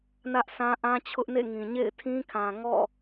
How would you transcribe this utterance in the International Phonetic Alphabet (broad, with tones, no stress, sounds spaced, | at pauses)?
n ä˦ ʔ sʰ ã˦ ʔ ã˦ t͡ɕʰ ʊ˦ ʔ n ḛ˦˨ ŋ ĩ˨ ɲ ḛ˦˨ ɪ̯ tʰ ĩ˦ kʰ ã˨ ŋ ɔ̰˦˨